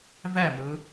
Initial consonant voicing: voiced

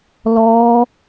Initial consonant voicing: voiced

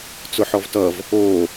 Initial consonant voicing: voiceless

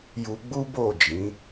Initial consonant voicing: voiced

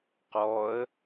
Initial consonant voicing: voiceless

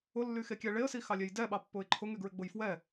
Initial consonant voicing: voiced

